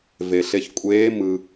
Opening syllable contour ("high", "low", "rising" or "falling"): low